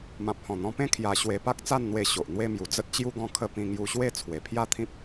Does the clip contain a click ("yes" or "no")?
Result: no